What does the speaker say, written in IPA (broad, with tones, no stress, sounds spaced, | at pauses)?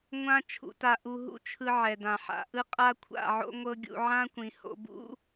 ŋʷ ã˦ t͡ʃʰ ṵ˧ t a˧ ʔ u˧ ɦ ṵ˦ t͡ʃʰ ɯ˧ ʕ ɛ˨ d ã˨ ħ a̰˨ ʔ ɯ˦ qʼ a˦ kʷʰ a̰˦˨ ʕ o̰˦ ŋʷ ɤ˦ ɡʲ ṵ˧ ʕ ã˦ kʷ ĩ˨ h o̰˧ b ṵ˦